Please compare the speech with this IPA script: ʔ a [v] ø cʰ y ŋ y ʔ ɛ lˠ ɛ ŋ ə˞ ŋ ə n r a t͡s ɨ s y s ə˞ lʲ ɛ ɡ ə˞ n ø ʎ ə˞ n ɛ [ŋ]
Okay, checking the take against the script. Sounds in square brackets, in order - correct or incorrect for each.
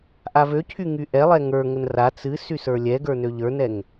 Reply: correct, correct

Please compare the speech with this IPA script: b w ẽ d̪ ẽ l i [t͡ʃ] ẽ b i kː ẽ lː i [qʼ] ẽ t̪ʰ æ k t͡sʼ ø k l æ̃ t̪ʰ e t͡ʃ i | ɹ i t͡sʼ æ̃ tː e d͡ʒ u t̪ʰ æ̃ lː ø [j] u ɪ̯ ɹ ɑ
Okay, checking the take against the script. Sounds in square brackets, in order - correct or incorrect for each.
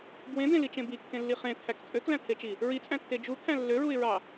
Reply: correct, incorrect: χ, incorrect: ɹ

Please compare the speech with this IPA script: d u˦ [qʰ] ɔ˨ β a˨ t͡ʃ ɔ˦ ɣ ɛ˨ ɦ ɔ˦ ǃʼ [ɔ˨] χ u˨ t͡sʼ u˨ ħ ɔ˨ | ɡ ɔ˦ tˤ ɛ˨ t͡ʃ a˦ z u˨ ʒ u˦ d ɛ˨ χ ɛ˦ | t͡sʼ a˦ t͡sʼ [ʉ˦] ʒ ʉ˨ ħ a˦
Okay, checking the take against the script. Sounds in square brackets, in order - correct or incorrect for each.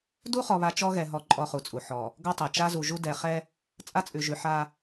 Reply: incorrect: χ, incorrect: ɔ˦, incorrect: ʉ˨

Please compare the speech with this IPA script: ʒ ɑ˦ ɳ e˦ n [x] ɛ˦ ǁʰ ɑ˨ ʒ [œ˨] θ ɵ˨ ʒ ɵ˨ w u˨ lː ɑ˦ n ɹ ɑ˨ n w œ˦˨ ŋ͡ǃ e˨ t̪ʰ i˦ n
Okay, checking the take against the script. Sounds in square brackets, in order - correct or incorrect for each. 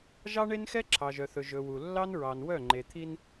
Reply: correct, correct

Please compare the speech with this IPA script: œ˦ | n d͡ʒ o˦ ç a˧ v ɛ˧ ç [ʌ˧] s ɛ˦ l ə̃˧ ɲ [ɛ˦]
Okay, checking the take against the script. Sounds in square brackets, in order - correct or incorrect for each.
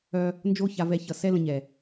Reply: incorrect: ʌ˨, incorrect: ɛ˨

